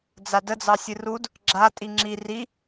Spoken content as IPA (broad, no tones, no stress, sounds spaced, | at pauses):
d͡z a d ə d͡z ɑ sʲ ɨ r u d | ɡ͡ǁ a tʼ i ŋ͡ǁ i r i